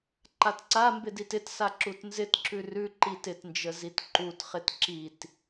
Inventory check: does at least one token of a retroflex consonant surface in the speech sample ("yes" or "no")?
no